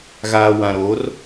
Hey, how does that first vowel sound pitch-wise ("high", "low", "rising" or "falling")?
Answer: low